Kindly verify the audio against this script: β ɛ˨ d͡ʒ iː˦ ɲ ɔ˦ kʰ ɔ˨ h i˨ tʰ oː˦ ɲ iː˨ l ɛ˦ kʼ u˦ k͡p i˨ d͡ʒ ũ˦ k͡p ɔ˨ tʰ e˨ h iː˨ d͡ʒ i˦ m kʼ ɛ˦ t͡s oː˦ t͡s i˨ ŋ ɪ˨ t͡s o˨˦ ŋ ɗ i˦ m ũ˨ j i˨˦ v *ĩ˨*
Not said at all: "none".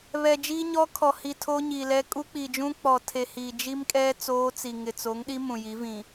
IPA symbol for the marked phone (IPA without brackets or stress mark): ĩ˨